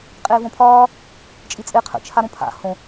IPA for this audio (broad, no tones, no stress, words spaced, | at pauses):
qʼeːvõpʰɒː | t͡ʃʼit͡sʼe qʰə̰ t͡ʃʰaɾõpʰa̰ hõ